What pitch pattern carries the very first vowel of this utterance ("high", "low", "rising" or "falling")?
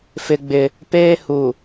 high